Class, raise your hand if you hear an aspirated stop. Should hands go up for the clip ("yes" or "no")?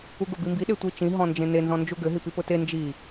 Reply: no